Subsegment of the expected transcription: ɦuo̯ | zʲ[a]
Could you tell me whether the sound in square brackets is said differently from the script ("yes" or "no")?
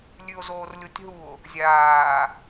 yes